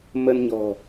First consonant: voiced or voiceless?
voiced